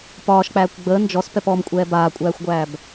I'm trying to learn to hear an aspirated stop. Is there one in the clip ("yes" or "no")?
no